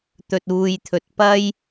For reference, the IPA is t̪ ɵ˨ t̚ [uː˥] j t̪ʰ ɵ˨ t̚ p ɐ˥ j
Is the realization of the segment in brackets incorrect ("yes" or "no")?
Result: yes